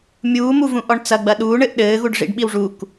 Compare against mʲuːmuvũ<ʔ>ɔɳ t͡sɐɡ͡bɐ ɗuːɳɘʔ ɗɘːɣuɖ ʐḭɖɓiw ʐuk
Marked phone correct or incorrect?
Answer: correct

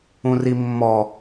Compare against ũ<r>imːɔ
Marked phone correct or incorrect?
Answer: correct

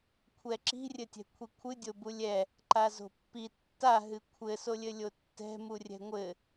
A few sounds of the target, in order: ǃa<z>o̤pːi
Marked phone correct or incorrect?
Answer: correct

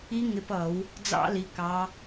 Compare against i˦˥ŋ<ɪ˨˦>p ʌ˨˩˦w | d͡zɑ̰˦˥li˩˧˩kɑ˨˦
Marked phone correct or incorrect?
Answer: correct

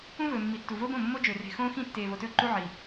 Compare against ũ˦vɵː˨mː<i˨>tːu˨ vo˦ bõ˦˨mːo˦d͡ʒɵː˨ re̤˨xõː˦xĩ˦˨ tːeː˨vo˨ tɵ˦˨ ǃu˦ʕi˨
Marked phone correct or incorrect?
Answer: correct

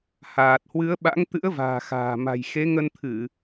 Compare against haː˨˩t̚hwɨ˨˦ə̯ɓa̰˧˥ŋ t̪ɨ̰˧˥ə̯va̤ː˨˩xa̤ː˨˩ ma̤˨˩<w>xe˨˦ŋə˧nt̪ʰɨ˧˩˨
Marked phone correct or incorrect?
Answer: incorrect: j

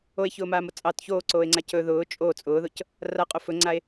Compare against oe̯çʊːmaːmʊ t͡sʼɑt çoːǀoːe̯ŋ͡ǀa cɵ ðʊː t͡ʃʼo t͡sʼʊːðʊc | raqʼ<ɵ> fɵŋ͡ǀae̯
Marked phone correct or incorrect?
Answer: incorrect: o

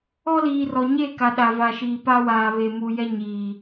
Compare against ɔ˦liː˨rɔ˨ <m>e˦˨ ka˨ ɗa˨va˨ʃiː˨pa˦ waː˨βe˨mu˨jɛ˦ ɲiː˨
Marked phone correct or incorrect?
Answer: incorrect: ɲ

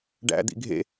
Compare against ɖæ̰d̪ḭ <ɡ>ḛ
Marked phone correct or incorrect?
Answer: incorrect: ɡʱ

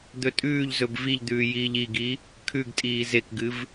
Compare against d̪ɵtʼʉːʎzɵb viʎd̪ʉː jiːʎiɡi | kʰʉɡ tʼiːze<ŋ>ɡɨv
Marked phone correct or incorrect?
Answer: incorrect: k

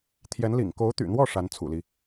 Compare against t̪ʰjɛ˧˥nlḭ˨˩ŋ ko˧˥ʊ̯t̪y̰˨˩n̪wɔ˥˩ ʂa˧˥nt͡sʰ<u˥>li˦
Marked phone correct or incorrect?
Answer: incorrect: ṵ˨˩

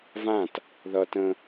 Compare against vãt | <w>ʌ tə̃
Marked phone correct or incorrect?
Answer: incorrect: ð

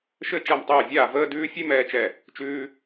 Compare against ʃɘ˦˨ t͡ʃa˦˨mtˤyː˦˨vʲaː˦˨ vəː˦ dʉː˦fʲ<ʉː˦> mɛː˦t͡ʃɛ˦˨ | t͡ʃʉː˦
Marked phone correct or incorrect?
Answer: incorrect: ʉ˦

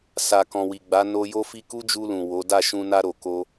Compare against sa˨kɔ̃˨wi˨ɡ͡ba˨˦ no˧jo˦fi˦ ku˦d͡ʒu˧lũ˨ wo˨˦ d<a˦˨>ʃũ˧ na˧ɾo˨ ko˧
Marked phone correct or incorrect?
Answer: correct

